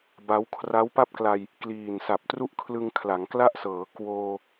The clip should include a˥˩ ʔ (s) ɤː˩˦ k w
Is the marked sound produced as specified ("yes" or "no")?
yes